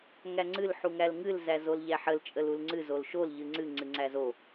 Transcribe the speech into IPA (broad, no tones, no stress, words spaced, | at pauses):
ŋæŋ͡ǀɨl ħuŋælŋɨl zæzolʎæħəl t͡ʃʼəlulŋ͡ǀɨ zolʃol ʎɨŋ͡ǀɨ ŋ͡ǀɨŋ͡ǀæzo